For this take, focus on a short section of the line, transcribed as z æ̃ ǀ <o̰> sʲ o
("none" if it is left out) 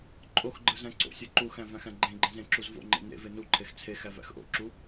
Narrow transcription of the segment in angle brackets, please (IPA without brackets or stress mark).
o̰